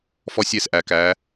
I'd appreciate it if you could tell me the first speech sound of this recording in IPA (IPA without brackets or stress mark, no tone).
f